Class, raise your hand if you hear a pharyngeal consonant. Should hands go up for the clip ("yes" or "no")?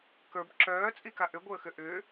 no